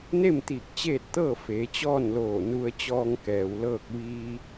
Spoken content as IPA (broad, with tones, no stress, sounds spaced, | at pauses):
n e˥˨ m t̪ iː˧˩ k̚ t͡ɕ eː˥˨ t̚ t̪ ɤː˥˨ f eː˩˧ t͡ɕ ɔː˥˨ n l oː˧˩ n u˧ ə̯ t͡ɕ ɔː˧ ŋ k ɛː˩ w l ɤː˥˨ k̚ ʋ iː˧